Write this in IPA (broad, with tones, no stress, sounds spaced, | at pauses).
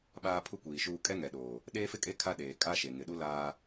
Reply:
ɓ aː˦ pʰ u˦ kʷ iː˨ ʃ uː˦ kʼ ɛ˦ ŋ ɛ˨ ɗ oː˨ | ɗ eː˦ f ɪ˦ kʼ e˦ kʰ a˦ ɗ eː˨ kʼ a˦ ʃ e˨ ŋ ɪ˨ ɗ u˦ l aː˦